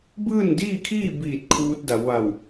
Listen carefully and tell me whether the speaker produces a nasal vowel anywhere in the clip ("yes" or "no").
no